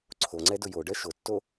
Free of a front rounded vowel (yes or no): yes